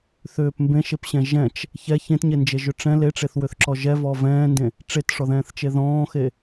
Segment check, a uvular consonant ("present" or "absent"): absent